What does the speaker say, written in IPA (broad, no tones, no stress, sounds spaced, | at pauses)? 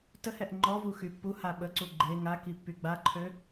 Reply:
t ə h ɛ ʔ ŋ͡ǃ ɔ v u x y pː u h a ɓ ə ǀ u ɡ͡ǃ e ŋ a k i pː y ɡ͡b a ǃʰ ø